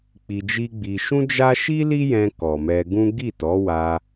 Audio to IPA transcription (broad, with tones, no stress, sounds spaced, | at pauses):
k͡p i˧ d͡ʒ i˦ ɡ͡b i˧ ʃ ũ˦ d͡ʒ a˦ ʃ i˦ l i˦ j ɛ̃˧ k ɔ˨ m ɛ˧ ɡ ũ˦ ɡ i˦˨ t ɔ˨˦ w a˧